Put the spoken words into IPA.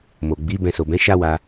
m o˨ ɡ͡b i˨˦ b ɛ̃˧ s o˨ b ɛ̃˨˦ ʃ a˦ w a˧

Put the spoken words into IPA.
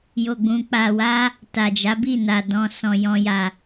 j o˨ ɡ͡b ũ˨ k͡p a˨ w a˧ | t a˨ d͡ʒ a˨˦ b i˦˨ n a˨ d ɔ̃˨ s ɔ̃˨ j ɔ̃˨ j a˨

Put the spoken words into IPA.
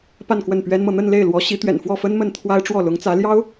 p a˥˧ n k w ə˥˩ n p ɥ ɛ˥ n m ɤ˨ n̪ ə˥˧ n l e˥˩ ɪ̯ l w ɔ˧˥ ɕ i˧˥ t̪ ɥ ɛ̰˨˩ n f w ɔ˥˩ f ə˥ n m ə˥˩ n t̪ʰ w a˥ ɪ̯ ʈ͡ʂ w ɔ˥˩ l ʊ˧˥ ŋ t͡s ä˧˥ l j ɑ˥ ʊ̯

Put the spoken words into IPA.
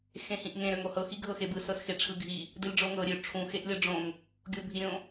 x ẽ h ĩ ʔ ŋ ẽ ɾ ø ŋ o h ɤ x i ɡʱ ɤ x e b ɯ s ɤ s x e ʈ͡ʂʰ ɯ ɡʱ i | d ɯ lʲ ɖ͡ʐ o ŋ ɤ ɾʲ ø ʈ͡ʂʰ ũ x e ʔ lʲ ɤ ɖ͡ʐ õ ŋ | ɡʲ o bʱ i ɾʲ õ

